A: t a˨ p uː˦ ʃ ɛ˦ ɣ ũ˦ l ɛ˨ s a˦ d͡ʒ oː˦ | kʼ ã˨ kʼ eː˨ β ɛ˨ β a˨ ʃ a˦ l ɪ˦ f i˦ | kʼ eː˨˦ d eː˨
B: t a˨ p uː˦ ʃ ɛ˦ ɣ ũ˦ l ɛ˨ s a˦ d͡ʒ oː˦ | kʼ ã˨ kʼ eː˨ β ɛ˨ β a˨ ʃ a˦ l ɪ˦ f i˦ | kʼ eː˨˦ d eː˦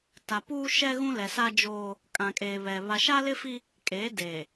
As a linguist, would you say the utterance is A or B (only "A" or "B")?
A